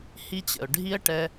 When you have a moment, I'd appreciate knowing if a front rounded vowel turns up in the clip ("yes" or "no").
no